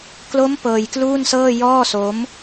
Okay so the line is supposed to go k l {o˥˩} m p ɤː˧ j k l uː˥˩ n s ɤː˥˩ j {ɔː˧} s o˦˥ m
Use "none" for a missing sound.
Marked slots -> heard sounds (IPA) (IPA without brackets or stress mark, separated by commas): o˦˥, ɔː˥˩